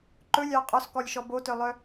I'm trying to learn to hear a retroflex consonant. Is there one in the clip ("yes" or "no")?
no